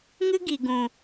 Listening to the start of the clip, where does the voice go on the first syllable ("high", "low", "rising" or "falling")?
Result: high